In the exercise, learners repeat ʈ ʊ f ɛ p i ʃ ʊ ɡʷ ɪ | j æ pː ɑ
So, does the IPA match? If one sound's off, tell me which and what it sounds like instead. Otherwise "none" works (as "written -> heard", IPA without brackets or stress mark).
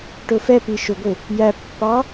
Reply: none